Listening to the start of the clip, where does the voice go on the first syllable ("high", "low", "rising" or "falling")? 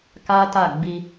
high